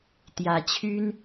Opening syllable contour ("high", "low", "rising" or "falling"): rising